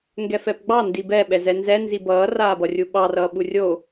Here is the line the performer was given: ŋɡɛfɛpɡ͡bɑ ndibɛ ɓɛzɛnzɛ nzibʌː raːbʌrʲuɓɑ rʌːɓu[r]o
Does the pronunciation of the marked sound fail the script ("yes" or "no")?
yes